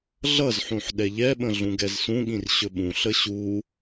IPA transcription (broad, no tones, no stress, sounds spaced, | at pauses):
ɮ ʌ z ħ ũ ħ ɗ ɛ ʎ ɛ ɓ ə̃ ɮ ũ ɡ ɛ z s ũ ɠ ĩ r ɕ ɵ ɓ ũ ɬ ə ɕ u